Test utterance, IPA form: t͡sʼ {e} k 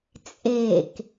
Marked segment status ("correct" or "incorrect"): correct